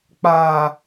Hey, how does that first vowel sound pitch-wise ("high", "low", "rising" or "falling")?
low